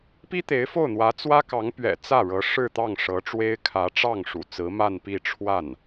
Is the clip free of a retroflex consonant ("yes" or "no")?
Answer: no